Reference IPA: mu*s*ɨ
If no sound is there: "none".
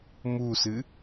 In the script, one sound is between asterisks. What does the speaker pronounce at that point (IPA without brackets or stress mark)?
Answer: s